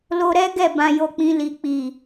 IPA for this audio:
l o˧ ɾ ɛ˦ ɡ ɛ˦˨ b ã˧ j o˧ k͡p ĩ˧ l i˨ k͡p i˨

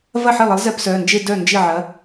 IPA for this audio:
v ɐ˥˩ ħ e˥˩ lˠ ə˨˥ lˠ z ɛ˥˧ p s œ˩˧˩ n d͡ʒ e˥˧ d œ˥˩ n d͡ʒ ɪ˥˩ ʕ ɐ˨˥

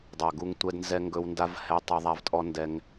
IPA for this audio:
dˤ a˨ ɡ u˧ ŋ tʷ ɛ˧ d n z ɛ˧ ŋ ɡ ɵ˧ w n d a˧ v h ɛ˧ tˤ ɵ˧ ðˤ a˧ v tʼ ɔ˦ n d ɛ˦ ŋ

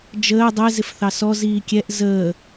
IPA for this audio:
d͡ʒ əː dˤ ɛ z ɪ f θ ɑ s ɔ z iː kʲ ɛ ʔ z əː

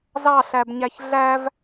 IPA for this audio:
z ɑ ɬ æ b ɲ æ ç ɮ æ v

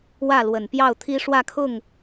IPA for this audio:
w ä˥˩ l w ə˨˩ n p j ɑ˥˩ ʊ̯ t̪ʰ i˥ ʂ w ä˥˧ kʰ ʊ˥˩ ŋ

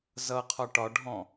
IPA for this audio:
z ʌ qʰ ɒ ʈ ɒ ɖʱ ɔ̃

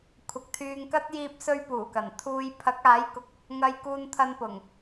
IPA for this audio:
kʷʰ ɐ˨ k̚ t̪ʰ yː˧ ŋ k ɐ˥ t̚ j iː˧ p̚ s ɵ˧ ɥ p uː˨˩ k ɐ˨˩ n t̪ʰ uː˧ j pʰ ɐ˨˥ k̚ aː˨˥ j k ʊ˨ k̚ | ŋ ɐ˧ j k uː˧ n t̪ʰ ɐ˧ n p ʊ˨˩ ŋ

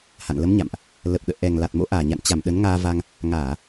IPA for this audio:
h a̰˧˨ n l ə˨˦ m ɲ a̰˧˨ m ʔ | l ə˨˩ p̚ ɗ ə̰ː˧˨ ʔ ɛ˨˩ ŋ l a˨˩ t̚ m o̰˧˥ ʔ aː˨˩ ɲ a̰˧˨ n t͡ɕ a˧˩ m ɗ ə˨˦ n ŋ aː˧ v a˧ ŋ | ŋ aː˧˩˨

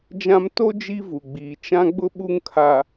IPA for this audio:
d͡ʒ ã˦ m t o˦ d͡ʒ i˦ v u˨ ɡ͡b iː˨ t͡ʃ ã˦ ɡ͡b ʊ˦ ɓ u˦ ŋ kʰ a˨

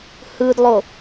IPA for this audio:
h ɯ d lˠ o

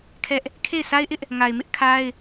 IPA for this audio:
kʰ ɛ˦ ʔ | kʰ e˦˨ ɪ̯ s a˦ ɪ̯ ʔ ɪ˦ ʔ | ŋ a˨ ɪ̯ m ɪ˦ ʔ kʰ a˦ ɪ̯

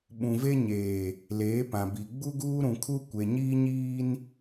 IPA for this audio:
ɓ ũ˨ v e˦ ɲ eː˨ | l eː˨˦ p ã˨ b i˨ ɡ͡b u˦ ɡ uː˦ ɾ ũ˨ kʰ u˦ kʷ e˨ ɲ iː˦ ɲ iː˦ n

